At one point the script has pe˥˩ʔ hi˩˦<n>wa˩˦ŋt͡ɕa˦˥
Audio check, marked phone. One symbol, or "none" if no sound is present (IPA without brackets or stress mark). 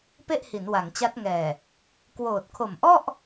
n